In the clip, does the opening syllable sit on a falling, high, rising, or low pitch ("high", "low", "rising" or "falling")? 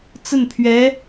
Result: falling